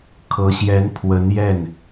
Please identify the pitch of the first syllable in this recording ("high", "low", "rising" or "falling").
rising